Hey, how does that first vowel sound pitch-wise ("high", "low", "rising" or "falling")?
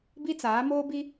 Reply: high